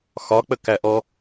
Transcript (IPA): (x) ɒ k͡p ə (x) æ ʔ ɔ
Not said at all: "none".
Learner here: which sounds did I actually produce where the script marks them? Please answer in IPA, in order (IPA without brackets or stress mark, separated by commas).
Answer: x, k